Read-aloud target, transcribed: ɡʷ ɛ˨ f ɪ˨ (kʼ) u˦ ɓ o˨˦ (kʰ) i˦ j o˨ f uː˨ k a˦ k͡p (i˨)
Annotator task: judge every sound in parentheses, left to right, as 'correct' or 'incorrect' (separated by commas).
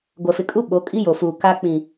correct, incorrect, incorrect